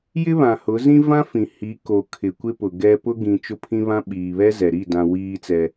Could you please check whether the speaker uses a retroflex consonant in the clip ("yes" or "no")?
no